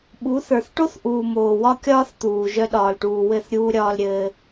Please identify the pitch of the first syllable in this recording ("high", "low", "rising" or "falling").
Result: rising